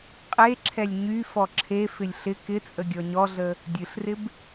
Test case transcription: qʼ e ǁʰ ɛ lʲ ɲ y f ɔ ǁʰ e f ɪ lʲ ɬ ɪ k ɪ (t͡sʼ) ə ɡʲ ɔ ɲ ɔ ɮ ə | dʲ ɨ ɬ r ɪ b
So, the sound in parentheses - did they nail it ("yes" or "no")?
yes